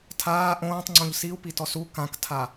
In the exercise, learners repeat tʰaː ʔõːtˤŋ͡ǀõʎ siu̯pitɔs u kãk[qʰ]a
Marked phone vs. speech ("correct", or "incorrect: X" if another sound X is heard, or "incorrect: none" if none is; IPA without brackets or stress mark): incorrect: tʰ